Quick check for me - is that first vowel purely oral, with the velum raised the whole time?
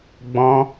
no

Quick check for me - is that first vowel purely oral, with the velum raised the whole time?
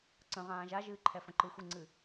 no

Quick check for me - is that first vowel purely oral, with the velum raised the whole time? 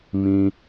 no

